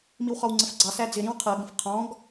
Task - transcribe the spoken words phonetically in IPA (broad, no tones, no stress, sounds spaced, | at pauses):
m i w χ ɒ w ŋ͡ǀ ə f ɡ͡ǀ ɑ s æ d͡z ɪ ɾ ĩ w qʰ ɜ ɡ ə̃ f qʰ ɔ̃ ɡ